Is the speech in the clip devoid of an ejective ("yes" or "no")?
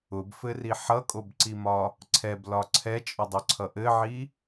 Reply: no